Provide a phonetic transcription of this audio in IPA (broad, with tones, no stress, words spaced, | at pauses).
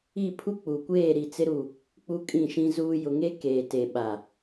i˦˨ pʰu˦k͡pu˨kʷeː˦˨ɾi˨ t͡sɪ˦ɾu˦˨ | k͡pu˦kʼĩ˦˨ʃĩ˦zuː˦ jʊ˨ŋe˦ keː˨te˨ɓa˨